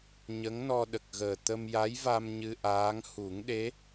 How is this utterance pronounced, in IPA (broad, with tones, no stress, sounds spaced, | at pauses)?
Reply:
ɲ ə˧˥ ŋ n ɔ˧ ɗ ə˨˩ k̚ ɣ əː˨˩ t̪ ə˧ m j a˧˥ j v a˧ m ɲ ɨ˧ ʔ aː˧˥ ŋ h u˨˩˦ ŋ ɗ e˧˥